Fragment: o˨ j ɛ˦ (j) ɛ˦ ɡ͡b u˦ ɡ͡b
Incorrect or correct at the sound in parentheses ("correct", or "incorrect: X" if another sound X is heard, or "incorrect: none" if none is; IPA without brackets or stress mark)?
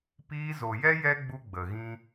correct